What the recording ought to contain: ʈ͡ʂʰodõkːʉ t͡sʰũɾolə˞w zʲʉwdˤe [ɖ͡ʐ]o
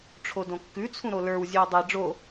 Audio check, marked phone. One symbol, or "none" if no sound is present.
ɖ͡ʐ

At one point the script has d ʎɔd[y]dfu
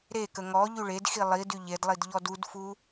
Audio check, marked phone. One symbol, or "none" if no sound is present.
u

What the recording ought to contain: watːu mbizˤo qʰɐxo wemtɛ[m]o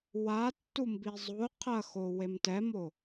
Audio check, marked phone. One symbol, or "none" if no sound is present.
m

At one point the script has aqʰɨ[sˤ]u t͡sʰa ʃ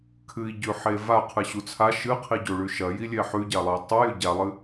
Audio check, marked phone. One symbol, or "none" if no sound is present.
ɕ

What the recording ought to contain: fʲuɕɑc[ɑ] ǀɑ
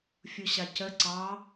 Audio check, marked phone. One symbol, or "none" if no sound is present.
ə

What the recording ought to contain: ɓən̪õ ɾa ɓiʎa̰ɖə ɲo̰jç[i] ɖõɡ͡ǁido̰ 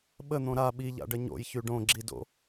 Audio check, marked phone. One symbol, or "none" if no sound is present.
y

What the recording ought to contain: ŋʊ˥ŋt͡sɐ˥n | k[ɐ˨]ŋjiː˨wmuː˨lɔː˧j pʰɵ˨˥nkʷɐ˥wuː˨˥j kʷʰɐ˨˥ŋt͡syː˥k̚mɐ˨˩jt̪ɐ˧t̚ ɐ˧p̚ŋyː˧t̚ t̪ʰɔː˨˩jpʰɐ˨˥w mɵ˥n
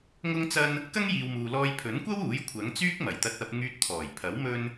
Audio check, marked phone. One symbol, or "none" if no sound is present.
ɐ˥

